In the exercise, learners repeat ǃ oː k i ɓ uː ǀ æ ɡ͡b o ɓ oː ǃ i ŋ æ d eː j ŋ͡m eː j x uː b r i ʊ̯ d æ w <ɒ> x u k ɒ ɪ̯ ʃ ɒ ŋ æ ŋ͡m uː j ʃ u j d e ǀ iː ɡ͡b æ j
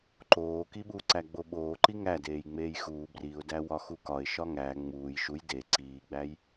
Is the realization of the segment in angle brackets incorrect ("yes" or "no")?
no